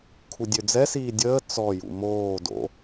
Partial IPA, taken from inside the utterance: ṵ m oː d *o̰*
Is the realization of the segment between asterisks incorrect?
no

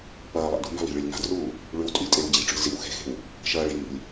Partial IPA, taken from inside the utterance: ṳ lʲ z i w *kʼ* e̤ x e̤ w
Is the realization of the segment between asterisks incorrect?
yes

